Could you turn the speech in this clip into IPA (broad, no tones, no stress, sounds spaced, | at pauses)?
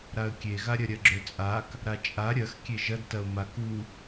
ɾ a ə̯ kʲ e ɣ a ɾʲ ɐ ɾʲ ɐ ɡ͡ǁ ø t͡sʼ a k | ɾ a t͡ʃʼ a ɾʲ ɐ x kʲ e ʒ ɐ d t ɐ ʊ̯ m a k u